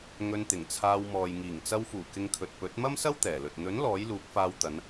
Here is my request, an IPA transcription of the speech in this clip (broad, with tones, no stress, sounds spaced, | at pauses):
ŋ ɵ˧ n t̪ ɪ˨˩ ŋ t͡sʰ aː˧ w m ɔː˨ j ŋ iː˨˩ ŋ t͡s ɐ˧ w f uː˨˩ k ɪ˧ ŋ kʰ ɵ˨ t̚ p ɵ˨˥ t̚ m ɐ˥ m s ɐ˥ w t̪ ɛː˨˩ l ɵ˨ t̚ n̪ ɵ˨˥ n l ɔː˨˥ j l uː˨˥ k̚ f aː˧ w t̪ ɐ˨˧ n